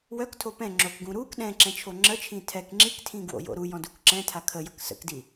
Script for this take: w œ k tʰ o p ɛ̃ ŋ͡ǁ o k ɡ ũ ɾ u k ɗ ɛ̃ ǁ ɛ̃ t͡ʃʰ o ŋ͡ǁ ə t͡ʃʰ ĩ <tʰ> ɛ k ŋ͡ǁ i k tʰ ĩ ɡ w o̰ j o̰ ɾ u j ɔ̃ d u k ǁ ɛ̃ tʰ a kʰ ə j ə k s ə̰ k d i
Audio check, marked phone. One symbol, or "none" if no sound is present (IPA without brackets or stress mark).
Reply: tʰ